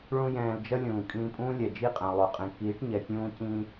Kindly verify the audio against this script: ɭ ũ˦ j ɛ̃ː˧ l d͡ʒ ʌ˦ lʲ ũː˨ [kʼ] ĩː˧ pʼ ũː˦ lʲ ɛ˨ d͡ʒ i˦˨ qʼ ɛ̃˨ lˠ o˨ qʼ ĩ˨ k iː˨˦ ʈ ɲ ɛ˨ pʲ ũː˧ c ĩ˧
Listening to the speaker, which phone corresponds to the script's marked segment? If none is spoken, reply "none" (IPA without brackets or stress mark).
kʼ